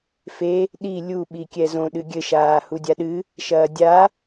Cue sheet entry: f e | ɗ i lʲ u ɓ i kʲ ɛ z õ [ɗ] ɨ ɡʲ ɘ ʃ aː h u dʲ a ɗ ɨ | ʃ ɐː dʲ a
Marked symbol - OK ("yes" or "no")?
yes